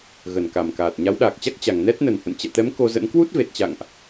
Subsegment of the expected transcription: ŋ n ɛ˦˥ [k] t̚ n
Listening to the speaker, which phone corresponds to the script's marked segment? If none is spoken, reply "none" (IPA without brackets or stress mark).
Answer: none